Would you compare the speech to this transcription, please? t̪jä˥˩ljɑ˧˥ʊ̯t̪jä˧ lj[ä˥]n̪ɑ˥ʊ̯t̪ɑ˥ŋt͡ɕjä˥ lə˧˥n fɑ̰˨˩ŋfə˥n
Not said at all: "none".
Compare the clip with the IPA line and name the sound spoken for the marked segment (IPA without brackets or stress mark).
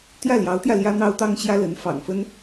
ä˥